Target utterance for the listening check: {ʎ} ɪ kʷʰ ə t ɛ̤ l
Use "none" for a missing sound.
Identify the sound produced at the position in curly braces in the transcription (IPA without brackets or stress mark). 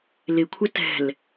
l